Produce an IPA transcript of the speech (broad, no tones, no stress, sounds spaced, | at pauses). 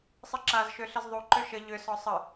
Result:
sˤ ɨ ǁ a z ʃ ø ɬ ə z ðˤ u ǃ ø ʃ ə ʎ ʏ s ɔ sˤ ə